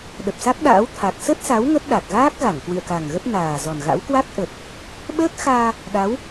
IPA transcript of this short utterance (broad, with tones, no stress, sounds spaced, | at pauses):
ɗ ə˨˩ p̚ s a˦˥ k̚ ɗ a̰ː˧˥ w t̪ʰ a˨˩ k̚ s ə˦˥ t̚ s a˨˦ w ŋ ə˦˥ t̚ ɗ a˨˩ k̚ ɣ aː˦˥ k̚ ɣ a˧˩ ŋ k w ɨ̰˧˨ ə̯ k a˨˩ ŋ ɣ ə˦˥ p̚ n aː˨˩ z ɔ˨˩ n ɣ a̰˧˥ w k w a˦˥ k̚ ʔ ə˨˩ t̚ | ɓ əː˦˥ k̚ x aː˧ | ɗ a˨˦ w